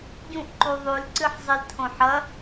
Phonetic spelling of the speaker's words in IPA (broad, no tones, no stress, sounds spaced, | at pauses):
ɟ ũ ʔ ǃ u ðˤ ʉ l ǀ ɨ ħ zˤ i l tʰ õ ħ ɐ